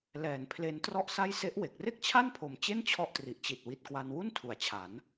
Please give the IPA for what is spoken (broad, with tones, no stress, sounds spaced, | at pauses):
l ɛː˩˦ n pʰ l e˧ n t r ɔ˥˩ ʔ s a˥˩ j s e˦˥ ʔ w e˨˩ k̚ r e˥˩ k̚ t͡ɕʰ a˥˩ n pʰ o˨˩ m t͡ɕ e˥˩ n t͡ɕʰ ɔ˦˥ ʔ t r i˨˩ ʔ t͡ɕ i˨˩ t̚ w i˨˩ t̚ k w a˧ n w u˥˩ n tʰ u˩˦ a̯ t͡ɕʰ a˩˦ n